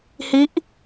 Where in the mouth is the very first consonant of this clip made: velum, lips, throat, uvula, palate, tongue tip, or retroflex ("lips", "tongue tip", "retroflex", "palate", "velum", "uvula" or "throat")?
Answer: throat